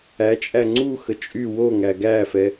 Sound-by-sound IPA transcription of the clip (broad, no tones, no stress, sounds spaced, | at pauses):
æ t͡ʃʼ æ ŋ͡ǀ u x ə t͡ʃʼ y w o ŋ æ ɡ æ f ɛ